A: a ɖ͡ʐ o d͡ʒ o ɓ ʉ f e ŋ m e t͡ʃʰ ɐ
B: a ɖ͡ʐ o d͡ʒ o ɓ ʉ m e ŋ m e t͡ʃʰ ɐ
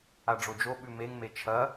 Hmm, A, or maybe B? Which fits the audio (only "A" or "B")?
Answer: B